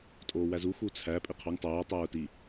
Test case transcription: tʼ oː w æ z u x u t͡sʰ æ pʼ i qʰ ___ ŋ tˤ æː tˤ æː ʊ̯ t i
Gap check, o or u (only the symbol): o